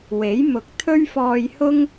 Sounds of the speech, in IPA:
w e˨˥ j m ʊ˨ k̚ t̪ʰ ɵ˥ ɥ f ɔː˧ j h ʊ˥ ŋ

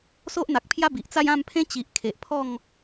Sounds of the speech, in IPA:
s o˦ ʔ n̪ a˨ k̚ pʰ j a˦ b i˨ ʔ t͡s a˥˧ j ã˥˧ m pʰ ẽ˦ t͡ɕ i˨ ʔ kʰ e˨ ʔ pʰ ɔ˥˧ ŋ

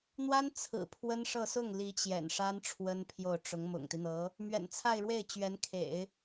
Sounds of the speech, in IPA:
n̪ w a˥ n t͡sʰ ɹ̩˨˩ pʰ w ə˥ n ʂ ɤ˥˧ s ʊ˥˩ ŋ l i˧˥ t͡ɕ j ɛ̰˨˩ n ʂ a˥ n ʈ͡ʂʰ w ə˥ n pʰ j o˥˩ ʊ̯ ʈ͡ʂ ʊ˧˥ ŋ m ʊ̰˨˩ ŋ t̪ i˦ n̪ ɤ˧˥ | m ɥ ɛ̰˨˩ n t͡sʰ a˥˧ ɪ̯ ɻ w e˥˩ ɪ̯ t͡ɕ ɥ ɛ˧˥ n kʰ ḛ˨˩˦ ɪ̯

